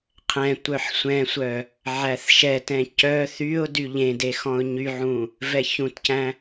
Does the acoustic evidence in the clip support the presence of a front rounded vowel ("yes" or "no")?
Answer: yes